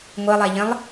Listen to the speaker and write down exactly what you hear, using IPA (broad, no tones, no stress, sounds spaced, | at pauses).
ŋʷ ɜ lˠ æ ʎ ə̃ lˠ